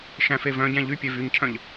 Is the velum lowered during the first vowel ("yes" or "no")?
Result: yes